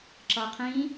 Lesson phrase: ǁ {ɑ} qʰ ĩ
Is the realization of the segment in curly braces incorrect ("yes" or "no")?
yes